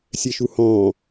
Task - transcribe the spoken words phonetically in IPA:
sʲ ɛ ʃ u h ɔ̃ː

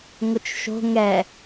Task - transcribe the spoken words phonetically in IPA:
ŋ ʊ t͡ʃ ʃ o̤ ŋ ɛ

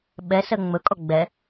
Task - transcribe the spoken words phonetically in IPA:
ɓ ɛ s ɜ ŋ͡m ɵ kʼ ɔ ɡ͡b ɛ

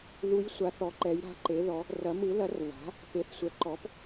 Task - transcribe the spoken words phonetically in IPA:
ð u˧˥ j sʷ a˩˥ θ ɔ˩˥ ǃ ɛ˩˥ j ɾ a̤˩˥ ǃ e˩˥ ð ɔ˩˥ | r ɐ˩˥ m ɯ˩˥ l ɐ˩˥ r β a̤˩˥ | p e˩˥ θ sʷ ɛ˩˥ ǃ ɔ˩˥ p

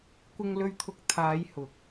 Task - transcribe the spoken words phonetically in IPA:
kʷ ɪ˧ ŋ l ɵ˧ ɥ t̪ʰ ʊ˧ k̚ t̪ʰ aː˨˧ j h ʊ˨˥ k̚

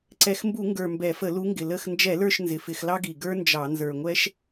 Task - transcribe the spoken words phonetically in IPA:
ǀ ɛ˨˩ x m b u˧˩˧ ŋ ɡ ə˞˨˩ m b ɛ˧˩˧ f ə˧˩˧ l u˨˦ ŋ ɡ ɪ˨˩ l ə˦˨ x n d͡ʒ ɛ˧˩˧ l ə˞˦˨ ʃ n z ɪ˨˩ f ɪ˧˩˧ x l ɑ˥ ɡ i˨˩ ɡ ə˞˥ n d͡ʒ ɑ˧˩˧ n z ə˞˨˩ ŋʷ ɛ˥ ʃ

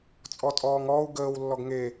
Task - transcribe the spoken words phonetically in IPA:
t͡sʼ ɔ tʼ ɔː ŋ ɔː u̯ ɡ əː w lː ɔ ɡ ŋ e

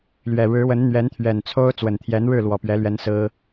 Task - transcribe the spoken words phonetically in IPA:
l ɥ ɛ˨˩ ɻ ɻ̩˧˥ w ə˧˥ n n̪ ɥ ɛ˧˥ n t̪ʰ ɥ ɛ˨˩ n t͡sʰ o˥ ʊ̯ t͡s w ə˨˩ n t̪ʰ j ɛ˧˥ n ɻ ɻ̩˥˩ l w ɔ˨˩ p ɥ ɛ˧˥ l ɥ ɛ˧˥ n s ɹ̩˥

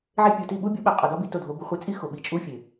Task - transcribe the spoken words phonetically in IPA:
ʕ e˧ pʲ u˨ t i˦˨ ɓ u˦ bʲ u˨˦ ɓ æ˨ qʼ ɒ˨ d ɒ˧ b i˨ t o˦˨ dʱ o˧ b u˧ χʷ e˧ t͡sʼ i˦ x o˨ ɓ i˨ t͡ʃʼ u˦ fʲ e˨

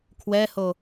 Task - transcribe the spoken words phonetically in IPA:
kʰ w ɛ h o

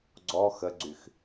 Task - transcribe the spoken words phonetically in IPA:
ɡ͡ǀ ɔ x ə ɡ͡ǀ y x

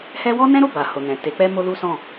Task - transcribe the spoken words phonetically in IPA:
h ɛ˦ w ɔ˦ n ɛ̃˦ ɾ o˦˨ b a˨ h o˨ n ɛ̃˨ t e˨˦ k͡p ɛ˦ m o˦ l u˦ s ɔ̃˦˨

